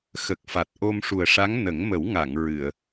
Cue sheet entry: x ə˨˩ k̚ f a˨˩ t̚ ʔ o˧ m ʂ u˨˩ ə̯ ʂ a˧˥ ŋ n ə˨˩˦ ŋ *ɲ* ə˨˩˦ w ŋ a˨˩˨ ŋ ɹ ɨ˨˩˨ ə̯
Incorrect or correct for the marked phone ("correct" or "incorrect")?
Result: incorrect